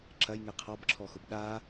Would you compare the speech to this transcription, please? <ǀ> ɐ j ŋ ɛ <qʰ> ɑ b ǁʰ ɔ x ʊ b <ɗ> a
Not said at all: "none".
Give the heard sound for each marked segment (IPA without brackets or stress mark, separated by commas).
ǁ, qʰ, ɗ